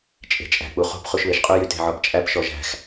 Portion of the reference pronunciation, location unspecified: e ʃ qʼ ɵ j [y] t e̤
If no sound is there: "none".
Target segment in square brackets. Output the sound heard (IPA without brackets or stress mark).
y